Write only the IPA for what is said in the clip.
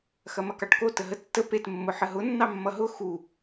x ɐ m ɐ k ɑ ʈ k o t ə ɦ ə tː ə p e t mː ʊ ħ ə ɦ ʊ nː ɑ mː ʌ ɦ ʊ x u

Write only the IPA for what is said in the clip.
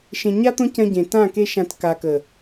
ʃ ẽ˨ ɲ a˧ t̪ õ˧ c ɐ̃˧ ɟ ẽ˨ t ã˦˨ k e˧ ʃ ã˨ t k a˨ k ə˨

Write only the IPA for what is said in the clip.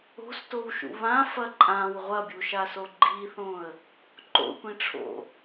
o̤ s t o w ʃ ṵ β ã f ɐ ǃʼ ã w ʁʷ ɐ bʲ u ʃ a s o ɡ͡ǃ i θ õ ə̯ | ǃ o̰ tʷ ĩ ʈ͡ʂʰ o̰

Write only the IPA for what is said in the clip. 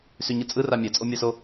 s y ɲ ɯ t͡sʼ ɯ r a mʲ ɛ t͡sʼ o mʲ a s o

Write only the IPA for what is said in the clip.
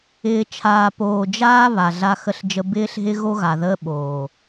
ɪː˨ t͡ʃʰ aː˨ p oː˨ d͡ʒ aː˦ β a˨ ɮ a˦ x ə˦ ɬ d͡ʒ ə˦ b ɪː˦ ɬ ɦ ɪ˦ ɣ o˦ ɣ a˨ ð əː˦ ɓ oː˨

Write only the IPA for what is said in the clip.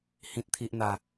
h ĩ˨ t̚ t̪ʰ i˨ ʔ n̪ a˨˩

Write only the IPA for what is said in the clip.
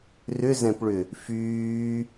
r ʏ z ɛ̃ p ɭ ʏ | f yː

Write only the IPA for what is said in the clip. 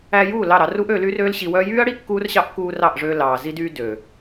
æ˧ j uː˦˨ l ɑ˦˨ ɾ ɑ˧ r u˦ ʔ ø˧ l y˦ r øː˦ l ɕ i˧ w œ˦ j yː˦ ɐ̯ ɽ i˦ kː uː˦ r ɕ ɑ˦ ʔ k uː˧ r ɑ˦˨ ʔ ʐ øː˧ l ɑː˨ z i˧ d yː˧ d ø˨

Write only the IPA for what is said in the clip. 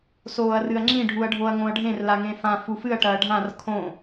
s oː ɐ̯ r ɨ ɐ̯ ŋ͡ǁ ĩ ɖʱ u ɐ̯ ɖʱ o ɐ̯ ŋ õ ɐ̯ ɖʱ ẽ r l a ŋ ẽ f ã f u f ɨ ɐ̯ ʈ ɐː ɖʱ ã r kʰ õ

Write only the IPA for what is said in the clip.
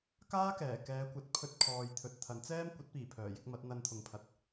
k aː˥ k ɛː˨˩ k ɛː˨˧ kʷ ɐ˨˥ t̚ pʰ ɵ˧ t̚ kʰ ɔː˨ j t̪ʰ ɵ˨ t̚ t̪ʰ ɐ˨˥ n t͡s ɛː˥ m kʷ ɐ˨˥ t̚ p iː˨˩ pʰ œː˨˩ j ɪ˨˥ k̚ m ɐ˨˥ t̚ n̪ ɐ˧ n t̪ʰ ʊ˨ ŋ pʰ ɐ˨ t̚

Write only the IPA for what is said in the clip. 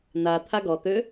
n a t̪ʰ a ɡ ɔ t̪ ø

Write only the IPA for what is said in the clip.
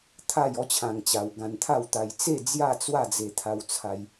t̪ʰ a˥˧ j ɔ˦ t͡ɕʰ ã˧ ŋ t͡ɕ a˧ w ɡ ã˧ n t̪ʰ a˥˧ w t̪ a˧ j t͡s e˥˧ d͡z j a˥˧ t͡s w a˥˧ d͡z e˧ t̪ʰ a˧ w t͡sʰ a˧ j

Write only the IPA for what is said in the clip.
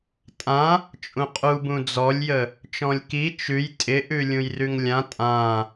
tʼ ã | t͡ʃʼ ũ qʼ u b ũ d͡z ɔ lʲ j ə | t͡ʃ ɔ̃ lʲ k i t͡ʃ ʉ j tʼ ɪ ʔ ʉ lʲ ũ j r ʉ ŋ lʲ ã tʼ ã

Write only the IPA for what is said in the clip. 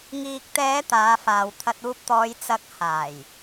ŋ iː˨ k̚ t̪ ɛː˨˧ t̪ aː˨˧ f aː˨ w t̪ʰ ɐ˧ t̚ uː˧ p̚ t̪ ɔː˨˧ j t͡s ɐ˨˥ k̚ h aː˨˩ j

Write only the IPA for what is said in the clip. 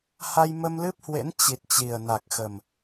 h a˧ j m ə˧ m l ɨ˦˥ p̚ h w ḛ˧˥ n t͡ɕ i˨˩ t̚ t͡ɕ i˨˩ ə̯ n a˨˩ k̚ x ə˨˩ m

